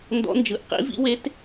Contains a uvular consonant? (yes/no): yes